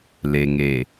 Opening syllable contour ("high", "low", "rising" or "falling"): low